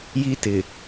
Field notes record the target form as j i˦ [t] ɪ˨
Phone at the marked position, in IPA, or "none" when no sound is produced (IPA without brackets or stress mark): t